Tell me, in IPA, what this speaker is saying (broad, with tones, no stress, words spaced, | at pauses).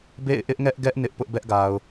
bḛ˦˨ɪ̯ʔɪ˦ʔŋɛ˦ʔɡɛ˦ʔ nɪ˦ʔ pʊ˦ʔbɛ˦ʔɡa˨ʊ̯